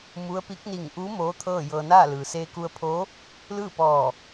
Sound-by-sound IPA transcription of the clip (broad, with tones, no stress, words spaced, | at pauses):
mu˧˥ə̯pi˧˥k̚ ni˧˩ŋʔuː˧˥ moː˧˥t̪ʰɤː˥˨jɤː˧ naː˥˨ lɯː˩seː˧ku˧ə̯pʰo˧˥ | lɯː˥˨pɔː˧˩